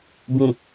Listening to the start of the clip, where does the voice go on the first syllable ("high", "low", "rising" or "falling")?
low